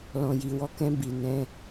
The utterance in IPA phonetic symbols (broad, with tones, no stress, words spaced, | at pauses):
lɔ̃˨ji˨wɔ˧kɛ̃˧ bi˨ nɛ̃˧